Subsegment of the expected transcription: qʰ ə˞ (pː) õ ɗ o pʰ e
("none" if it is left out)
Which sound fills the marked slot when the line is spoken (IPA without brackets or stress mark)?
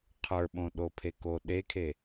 ɓ